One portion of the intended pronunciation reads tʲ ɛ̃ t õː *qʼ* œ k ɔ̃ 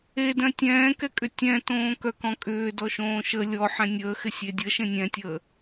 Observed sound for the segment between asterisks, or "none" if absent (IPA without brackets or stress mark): k